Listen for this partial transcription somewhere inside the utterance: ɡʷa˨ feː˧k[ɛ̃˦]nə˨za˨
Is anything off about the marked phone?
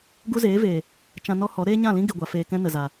no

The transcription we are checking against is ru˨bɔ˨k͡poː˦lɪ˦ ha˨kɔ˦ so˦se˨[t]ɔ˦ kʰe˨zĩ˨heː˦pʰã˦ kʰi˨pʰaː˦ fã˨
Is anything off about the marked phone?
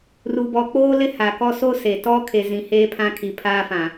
no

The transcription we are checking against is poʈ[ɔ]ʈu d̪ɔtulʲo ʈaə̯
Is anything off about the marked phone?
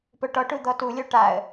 no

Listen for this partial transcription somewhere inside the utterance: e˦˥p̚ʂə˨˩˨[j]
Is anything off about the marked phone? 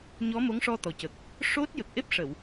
yes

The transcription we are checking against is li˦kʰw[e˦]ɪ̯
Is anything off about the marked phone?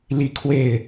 yes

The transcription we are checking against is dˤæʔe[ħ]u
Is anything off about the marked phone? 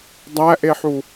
no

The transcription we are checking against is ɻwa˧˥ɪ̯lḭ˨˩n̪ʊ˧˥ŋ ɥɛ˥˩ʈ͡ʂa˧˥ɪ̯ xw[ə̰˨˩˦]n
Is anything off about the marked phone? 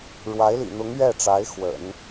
no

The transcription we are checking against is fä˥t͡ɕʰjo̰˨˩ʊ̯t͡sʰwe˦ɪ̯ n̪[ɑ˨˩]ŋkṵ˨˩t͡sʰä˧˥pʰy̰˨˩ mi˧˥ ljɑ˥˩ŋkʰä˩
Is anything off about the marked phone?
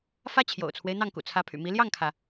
yes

